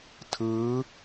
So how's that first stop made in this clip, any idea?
aspirated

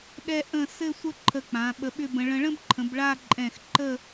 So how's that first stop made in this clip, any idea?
implosive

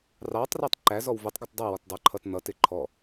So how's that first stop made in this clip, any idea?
plain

